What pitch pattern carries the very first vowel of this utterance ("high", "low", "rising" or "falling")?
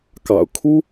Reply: low